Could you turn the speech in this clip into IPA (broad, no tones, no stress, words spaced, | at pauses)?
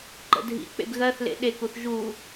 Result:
ǃə̰dʱḭk͡pḛb ɣɜθlḛ ɗekuθ ʒu